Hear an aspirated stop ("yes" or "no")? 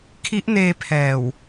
yes